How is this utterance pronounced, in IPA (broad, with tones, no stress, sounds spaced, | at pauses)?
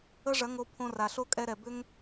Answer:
ə˦ ʐ ɐ˨˦ ŋ o˧ pʰ õ˧ r a˨ ɬ o˦ kʼ ɛ˧ ɾ ɛ˨ b ʏ˦ ŋ